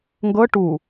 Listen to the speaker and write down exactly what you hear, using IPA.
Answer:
ŋ ɡ ɤ ʈ u

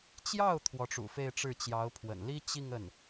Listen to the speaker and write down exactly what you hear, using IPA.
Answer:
t͡ɕ j ɑ˥˩ ʊ̯ t̪ʰ w ɔ˧˥ ʈ͡ʂ ṵ˨˩ f e˥˧ ɪ̯ ʈ͡ʂ ɻ̩˥˩ t͡ɕ j ɑ˧˥ ʊ̯ pʰ w ə̰˨˩ n l i˥ t͡ɕ i˥˧ ŋ ə˥˩ n

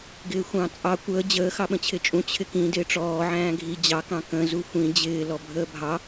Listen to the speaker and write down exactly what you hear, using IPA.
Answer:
ɡ ɪː xʷ ɑ̃ t͡sʼ ɑ kʷ əː d͡ʑ əː x ɑ ɓ ə̃ t͡ɕʰ ɪ t͡ʃʼ ũ t͡ɕʰ ɪ k ĩ d ɪː ʈ͡ʂ ɔː ʕ æ̃ː ɡʱ i d͡ʑ ɑ k ɑ̃ k ə̃ z u xʷ ĩ d͡ʑ ɪː l ɔ bʱ əː bʱ ɑ

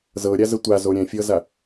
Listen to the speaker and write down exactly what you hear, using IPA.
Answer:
z ɤ ɾʲ a z ə tʷ a z o ɾʲ ɛ̃ fʲ ɤ z a

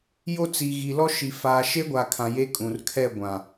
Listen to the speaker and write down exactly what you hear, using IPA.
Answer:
j o˦ t͡s i˨ ɣ i˨ l ɔ˦ ʃ i˨ f aː˨ ʃ e˦ ɡʷ a˨ kʰ ã˨ j e˦ kʼ ũ˨ r kʰ ɛ˦˨ ɡʷ ã˨

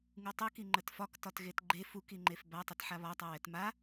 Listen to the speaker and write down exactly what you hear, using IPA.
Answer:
ŋ u tˤ ə k i ŋ͡ǃ ə t f ɒ k t ɒ t ɣ e t ɡ͡ǃ e f u k i ŋ͡ǃ e f b a tˤ ə t ħ a β ɒ tˤ a w ɛ t m a

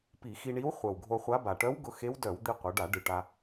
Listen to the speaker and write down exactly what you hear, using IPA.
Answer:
p i˧˩˧ x i˧ ɳ i˧˥ w χʷ œ˨˩ w ɡʱ o˧ χʷ a˧˥ b a˨˩ ʈ œ˧˥ w ɡ ʊ˧ x e˧˥ w d œ˧˩˧ w d̪ i˧ qʷ œ˩˧ ɖ a˧˩˧ ɖ ɨ˨˩ ʈ a˧

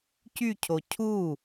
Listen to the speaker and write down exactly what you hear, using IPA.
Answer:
c y cʰ o cʰ u

